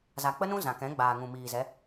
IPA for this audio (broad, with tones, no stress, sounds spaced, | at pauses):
z a˨ k͡p ə˦ n ũ˦ z ã˨ k ɛ̃˨˦ ɡ͡b aː˨ ŋ ũ˨ m iː˨ z ɛ˨˦